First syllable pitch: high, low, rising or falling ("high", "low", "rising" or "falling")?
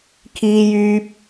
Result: low